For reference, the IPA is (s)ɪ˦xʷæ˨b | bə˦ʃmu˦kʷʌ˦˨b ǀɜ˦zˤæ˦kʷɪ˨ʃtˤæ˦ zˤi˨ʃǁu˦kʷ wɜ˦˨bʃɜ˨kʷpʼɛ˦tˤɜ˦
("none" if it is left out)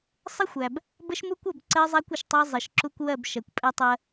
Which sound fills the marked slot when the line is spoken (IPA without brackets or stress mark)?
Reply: sˤ